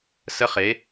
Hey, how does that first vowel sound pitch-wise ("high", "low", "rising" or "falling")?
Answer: high